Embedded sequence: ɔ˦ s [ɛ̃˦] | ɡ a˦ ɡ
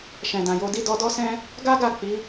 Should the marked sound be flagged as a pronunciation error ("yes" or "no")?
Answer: no